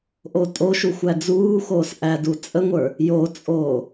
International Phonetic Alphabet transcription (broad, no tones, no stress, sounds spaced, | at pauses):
ʔ o tʼ o ʃ u xʷ æ d͡z uː x oː s ʔ æ d u t͡sʼ ə ŋʷ ə˞ | j o t͡sʼ oː